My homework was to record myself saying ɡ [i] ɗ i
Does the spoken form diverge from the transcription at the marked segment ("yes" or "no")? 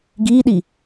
yes